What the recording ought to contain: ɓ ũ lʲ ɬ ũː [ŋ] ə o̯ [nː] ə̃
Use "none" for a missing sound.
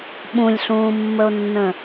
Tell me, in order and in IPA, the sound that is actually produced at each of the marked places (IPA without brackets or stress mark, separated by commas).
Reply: mː, nː